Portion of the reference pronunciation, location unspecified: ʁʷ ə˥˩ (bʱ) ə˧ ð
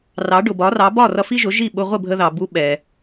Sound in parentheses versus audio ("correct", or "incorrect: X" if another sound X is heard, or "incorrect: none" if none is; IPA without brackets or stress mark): correct